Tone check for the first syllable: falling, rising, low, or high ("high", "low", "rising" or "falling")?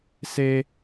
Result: high